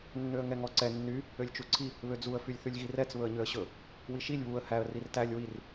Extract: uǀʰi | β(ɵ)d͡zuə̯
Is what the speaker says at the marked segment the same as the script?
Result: no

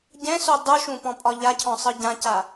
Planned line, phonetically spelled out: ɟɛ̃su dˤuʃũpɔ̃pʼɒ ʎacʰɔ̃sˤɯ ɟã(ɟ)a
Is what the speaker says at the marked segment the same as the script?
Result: no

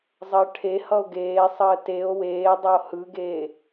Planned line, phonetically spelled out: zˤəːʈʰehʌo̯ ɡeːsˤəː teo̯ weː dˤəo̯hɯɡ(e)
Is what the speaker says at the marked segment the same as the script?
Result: no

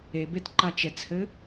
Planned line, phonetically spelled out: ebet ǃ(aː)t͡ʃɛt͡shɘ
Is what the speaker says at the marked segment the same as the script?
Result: no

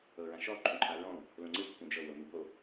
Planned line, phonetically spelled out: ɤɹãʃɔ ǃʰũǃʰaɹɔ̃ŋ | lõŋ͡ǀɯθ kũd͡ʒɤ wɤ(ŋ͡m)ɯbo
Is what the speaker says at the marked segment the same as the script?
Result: no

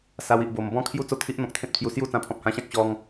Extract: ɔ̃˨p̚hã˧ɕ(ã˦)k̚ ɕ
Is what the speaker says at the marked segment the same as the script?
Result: yes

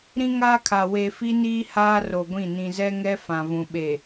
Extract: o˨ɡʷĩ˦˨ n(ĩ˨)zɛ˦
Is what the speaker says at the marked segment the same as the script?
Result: yes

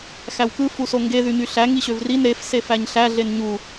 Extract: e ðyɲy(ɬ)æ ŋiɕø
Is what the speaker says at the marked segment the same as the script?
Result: yes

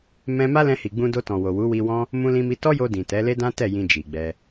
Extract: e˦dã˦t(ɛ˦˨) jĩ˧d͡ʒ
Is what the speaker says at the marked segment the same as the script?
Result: yes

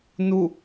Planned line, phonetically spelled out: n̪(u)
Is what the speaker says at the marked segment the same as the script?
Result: yes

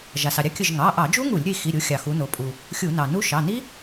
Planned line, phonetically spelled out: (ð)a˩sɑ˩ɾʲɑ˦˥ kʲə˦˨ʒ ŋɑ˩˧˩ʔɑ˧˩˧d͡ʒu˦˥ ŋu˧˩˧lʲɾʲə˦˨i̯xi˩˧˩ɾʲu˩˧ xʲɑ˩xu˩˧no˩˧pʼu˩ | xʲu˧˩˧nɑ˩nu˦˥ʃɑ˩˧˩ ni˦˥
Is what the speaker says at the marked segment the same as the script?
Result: no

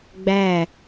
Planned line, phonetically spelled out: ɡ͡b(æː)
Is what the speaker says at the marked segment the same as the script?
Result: yes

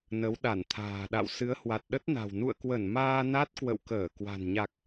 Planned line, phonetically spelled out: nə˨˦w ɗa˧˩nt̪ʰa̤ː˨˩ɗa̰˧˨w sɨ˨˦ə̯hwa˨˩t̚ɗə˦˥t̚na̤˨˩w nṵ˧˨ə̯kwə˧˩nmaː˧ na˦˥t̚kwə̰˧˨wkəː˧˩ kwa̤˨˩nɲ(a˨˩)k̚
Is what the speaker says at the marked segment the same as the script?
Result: yes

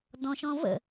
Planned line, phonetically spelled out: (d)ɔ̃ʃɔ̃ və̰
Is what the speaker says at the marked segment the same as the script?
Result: yes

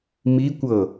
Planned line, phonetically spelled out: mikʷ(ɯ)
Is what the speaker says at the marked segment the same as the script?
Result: no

